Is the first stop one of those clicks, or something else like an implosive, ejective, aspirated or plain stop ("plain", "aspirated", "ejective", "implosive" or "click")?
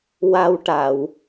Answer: plain